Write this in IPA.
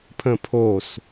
pʰ ə̃ pʰ o s

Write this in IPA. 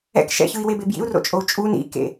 ɛ̰ k ʃ ɛ̰ ç ɯ i̯ w e b e b j ḭ u̯ r o̰ t͡ʃʼ o u̯ t͡ʃʼ u n ḭ k ḛ

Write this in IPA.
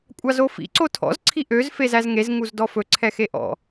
kʷʼ ɑ z o f ḭ ǀ o tʰ ɔ̰ z ǀʰ i ʔ ø z f e z æ z ŋ e z ŋ u z d ɔ f ɵ ǀʰ ɛ x e ʔ ɔ̰

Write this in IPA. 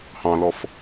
h ɑ̃ l ɔ f

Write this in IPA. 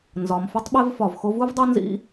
n z ɒ˨ m f u˦ tˤ ɓ e˦ v f ɒ˨ v x o˧ v u˦ v dˤ o˦ n z ḭ˦

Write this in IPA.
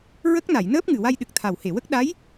ɹ ə˦˥ k̚ n a˨˩˨ j n əː˦˥ p̚ ŋ ɨ˨˩ w a˧ j ɗ ɨ˨˩ k̚ t̪ʰ a˨˩ w h e˨˩˨ w ə˦˥ k̚ ɗ a˧˥ j

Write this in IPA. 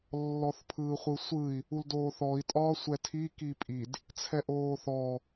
lː ɔ θ pʰ ɯː χʷ ɯ sʷ ɯ i̯ | u l d oː θ ɔ i̯ tʼ ɒː sʷ ɛ tʰ i k i pʼ i d | t͡sʰ ɛ ʔ oː θ ɔ

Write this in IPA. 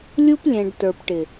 lʲ u˦ p lʲ ɛ̃˨ ɖ t ə˞˨ p ʈ ɪ˨

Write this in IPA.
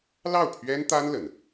l ɑ˥˩ ʊ̯ pʰ ɥ ɛ˥ n t̪ a˥ n l ə˧˥ n

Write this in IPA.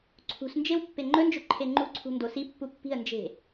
ǀʰ ṳ s n d͡ʒ e w pː e ŋ͡ǃ ɵ n d͡ʒ ɵ ǃʰ e ŋ͡ǃ u ǀʰ ṳ n d o s i pː u pː i̤ ə̯ n d͡ʒ e̤

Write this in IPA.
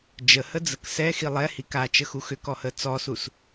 d͡ʒ ə h ə d͡z ə k s ɛ x i lˠ ɛ h i k a t͡ʃ ə x u x ʏ k ɔ h ə t͡s ɔ s u s

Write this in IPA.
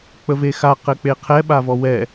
k͡p ə v e x a q ɘ k͡p e qʰ ɛ ɓ a v ɔ w ɛ

